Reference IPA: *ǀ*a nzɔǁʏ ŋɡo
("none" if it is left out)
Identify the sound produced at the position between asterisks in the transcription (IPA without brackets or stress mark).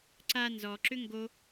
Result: ǀ